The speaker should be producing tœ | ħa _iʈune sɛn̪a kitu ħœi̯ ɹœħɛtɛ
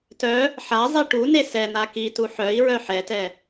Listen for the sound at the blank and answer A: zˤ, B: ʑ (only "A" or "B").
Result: A